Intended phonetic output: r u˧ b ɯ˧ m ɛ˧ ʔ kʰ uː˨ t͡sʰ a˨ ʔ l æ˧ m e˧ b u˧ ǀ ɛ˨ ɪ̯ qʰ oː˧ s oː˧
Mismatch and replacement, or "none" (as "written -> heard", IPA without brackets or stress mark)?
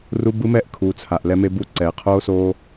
æ˧ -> ɛ˧